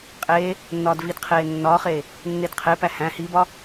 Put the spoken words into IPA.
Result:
qʼ eː | nː ɒː d v i d qʰ eː nː ɒː χ eː | nː e d qʰ e p æ h æ̃ h i b ɒ

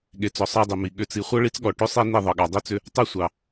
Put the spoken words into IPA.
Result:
ɠ e˨ t͡s ɔ˨ sˤ ɑ˦ dˤ i˨ m i˨ ɠ ʏ˨ t͡s i˨ χʷ ɤ˦ ɭ i˦ t͡s ɠ ɔ˨ ʈ ʏ˦ sˤ e˦ n i˦˨ ðˤ ɤ˨ ɠ ɑ˨ dˤ i˦ t͡s ʏ˦ | tˤ e˦ sʷ ɑ˨

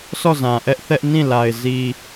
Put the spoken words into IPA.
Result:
sʰ ɔ˦˨ z ã˨ ʔ ɛ˦ ʔ θ ɛ˦ ʔ n ĩ˦˨ l a˨ ɪ̯ z i˨

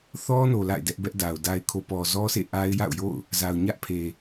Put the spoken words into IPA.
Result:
θ ɔ˦ n o˨ l a̰˦˨ ɪ̯ d ɛ˦ ʔ b ɛ˦ ʔ d a˨ ʊ̯ d a˨ ɪ̯ kʰ o˨ p ɔ˨ z ɔ˦ s ḛ˦˨ ʔ a˦ ɪ̯ j a̰˦˨ ʊ̯ j o̰˦˨ ʊ̯ | z a˨ ʊ̯ ɲ ä˦ ʔ pʰ e˨

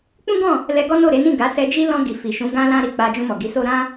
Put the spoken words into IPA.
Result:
k͡p ũ˦ ɡ ɔ̃˦˨ | l ɛ˧ ɡ ɔ˦ n o˦˨ ɾ e˨˦ n ĩ˦˨ ɡ a˨˦ s ɛ˧ d͡ʒ i˦ l ɔ̃˧ ɡ i˨ f i˨ ʃ ũ˨˦ ɡ ã˧ l ã˧ ɾ i˧ k͡p a˧ d͡ʒ ũ˧ m ɔ˨ ɡ i˨˦ s o˦ ɾ ã˦

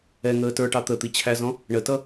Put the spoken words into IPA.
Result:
ɛ ŋ əː t ə˞ ʈ ɑ t̪ ə t̪ i t͡ɕʰ æ z ɔ̃ | ɳ ə t ʌ

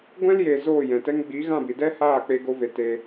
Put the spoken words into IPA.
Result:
ɡʷ ɛ̃˦ l j e˨ z oː˦˨ j ɛ̃˨ t ɛ˦ ŋ ɡ͡b i˨˦ ɣ ã˦˨ b i˨ d ɛ˦ h aː˦˨ k͡p e˧ ɡ o˧ v e˨ t e˧

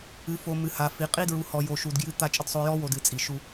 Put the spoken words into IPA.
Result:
ɨ˨ f o˨ m ɨ˨ h a˨ f i˨ qʼ i˦ d ɹ u˨ h ɔ˨ j o˨ ʃ u˨ d ɡ j ɨ˦ t̪ a˦˨ t͡ʃʼ ə˦ d sˤ o˦ j ɔ˦ w o˨ d ɨ˨ t͡sʼ i˨ ʃ u˦

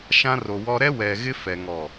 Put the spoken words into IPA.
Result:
ʃ ã˦ r o˨ w ɔ˦ ɾ ɛ˦ w ɛ˨ ɣ ɪ˦ f ɛ˨ ŋ ɔ˨

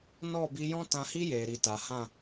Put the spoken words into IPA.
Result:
n ɔ˦˨ b i˧ j ɔ̃˦ t ã˧ h i˦ j eː˨ ɾ i˨ t a˨ h ã˦˨

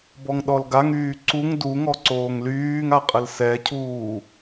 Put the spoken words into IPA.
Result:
b ɔ ŋ ɗ ɔ l ɡ a ŋ yː ǀ u ŋ d u ŋ ɔ ǀ oː ŋ l yː ŋ a qʼ ə l s ɛ cʰ uː

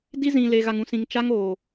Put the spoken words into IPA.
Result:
d i˦ z ĩ˨ l e˨ ɣ a˨ ŋ ũ˨ s ĩ˨ ŋ t͡ʃ a˦ ŋ oː˨

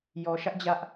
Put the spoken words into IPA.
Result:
j ɔ˨ ʃ ä˦ ʔ d͡ʑ ä˦ ʔ

